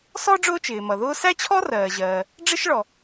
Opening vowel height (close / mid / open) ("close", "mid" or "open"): mid